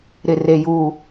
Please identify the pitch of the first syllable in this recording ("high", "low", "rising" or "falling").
high